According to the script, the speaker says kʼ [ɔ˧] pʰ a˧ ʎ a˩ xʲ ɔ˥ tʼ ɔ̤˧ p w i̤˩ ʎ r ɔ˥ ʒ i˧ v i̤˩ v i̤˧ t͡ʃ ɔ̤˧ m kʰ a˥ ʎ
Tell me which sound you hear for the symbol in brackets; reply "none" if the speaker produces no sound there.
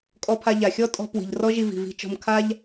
ɔ˧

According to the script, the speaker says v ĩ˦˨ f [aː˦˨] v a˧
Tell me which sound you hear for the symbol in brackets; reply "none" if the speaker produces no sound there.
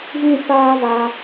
aː˦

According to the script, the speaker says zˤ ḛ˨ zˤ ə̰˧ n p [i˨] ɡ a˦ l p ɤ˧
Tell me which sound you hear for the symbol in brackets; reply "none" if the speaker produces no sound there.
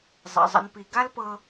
i˨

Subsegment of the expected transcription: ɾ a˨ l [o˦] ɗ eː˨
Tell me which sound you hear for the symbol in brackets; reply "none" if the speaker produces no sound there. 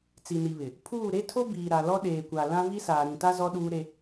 ɔ˦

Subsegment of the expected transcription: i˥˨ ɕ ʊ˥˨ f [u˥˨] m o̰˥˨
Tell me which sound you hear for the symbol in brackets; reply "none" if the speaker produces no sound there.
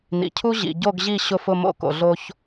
ʊ˥˨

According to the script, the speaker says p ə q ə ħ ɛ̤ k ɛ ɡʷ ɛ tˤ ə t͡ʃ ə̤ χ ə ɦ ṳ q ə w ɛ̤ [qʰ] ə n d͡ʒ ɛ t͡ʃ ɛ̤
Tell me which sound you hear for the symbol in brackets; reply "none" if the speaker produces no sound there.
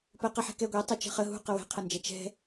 qʰ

